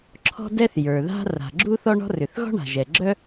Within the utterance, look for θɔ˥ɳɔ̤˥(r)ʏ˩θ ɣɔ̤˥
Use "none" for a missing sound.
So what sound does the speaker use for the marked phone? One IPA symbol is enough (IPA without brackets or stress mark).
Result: r